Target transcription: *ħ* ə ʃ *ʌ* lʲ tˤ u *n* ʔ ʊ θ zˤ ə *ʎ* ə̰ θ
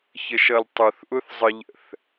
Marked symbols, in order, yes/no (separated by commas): no, yes, no, yes